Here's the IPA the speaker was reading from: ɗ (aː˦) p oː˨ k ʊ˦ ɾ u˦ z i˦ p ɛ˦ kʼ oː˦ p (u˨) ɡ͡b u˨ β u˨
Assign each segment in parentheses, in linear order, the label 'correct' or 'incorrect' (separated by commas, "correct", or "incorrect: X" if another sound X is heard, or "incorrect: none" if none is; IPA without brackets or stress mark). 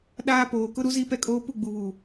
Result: correct, incorrect: u˦˨